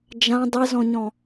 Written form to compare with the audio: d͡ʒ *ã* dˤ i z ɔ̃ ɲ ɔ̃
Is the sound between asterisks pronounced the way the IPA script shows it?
yes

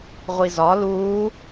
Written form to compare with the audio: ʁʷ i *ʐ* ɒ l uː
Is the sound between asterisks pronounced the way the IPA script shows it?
no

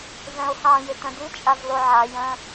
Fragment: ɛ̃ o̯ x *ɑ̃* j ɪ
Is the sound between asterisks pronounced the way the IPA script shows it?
yes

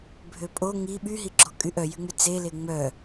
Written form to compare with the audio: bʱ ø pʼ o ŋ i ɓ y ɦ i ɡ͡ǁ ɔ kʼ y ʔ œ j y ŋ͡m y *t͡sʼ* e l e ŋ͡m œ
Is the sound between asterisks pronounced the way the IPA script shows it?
no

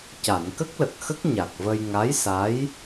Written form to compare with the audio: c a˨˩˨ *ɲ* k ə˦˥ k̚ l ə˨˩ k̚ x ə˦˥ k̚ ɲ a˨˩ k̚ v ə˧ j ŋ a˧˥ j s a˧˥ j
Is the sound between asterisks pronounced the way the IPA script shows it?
no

